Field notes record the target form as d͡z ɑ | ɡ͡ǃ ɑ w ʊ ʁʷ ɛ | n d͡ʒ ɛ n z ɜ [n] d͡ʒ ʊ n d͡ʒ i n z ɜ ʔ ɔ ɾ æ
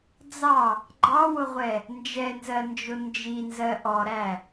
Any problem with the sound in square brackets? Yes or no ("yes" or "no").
no